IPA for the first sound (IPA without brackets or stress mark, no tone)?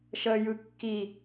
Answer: ʃ